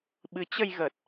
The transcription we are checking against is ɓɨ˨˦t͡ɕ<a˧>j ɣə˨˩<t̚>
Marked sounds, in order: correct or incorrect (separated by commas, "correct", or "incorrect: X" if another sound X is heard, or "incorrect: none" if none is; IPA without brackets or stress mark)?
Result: incorrect: ə˧, correct